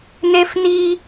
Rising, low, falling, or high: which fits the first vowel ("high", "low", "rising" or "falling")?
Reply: high